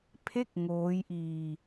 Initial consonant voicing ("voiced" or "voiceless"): voiceless